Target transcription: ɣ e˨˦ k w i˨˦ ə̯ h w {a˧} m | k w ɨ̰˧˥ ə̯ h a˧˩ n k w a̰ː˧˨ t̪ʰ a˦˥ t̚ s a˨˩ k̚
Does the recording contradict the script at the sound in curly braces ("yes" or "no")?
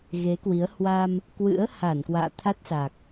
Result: no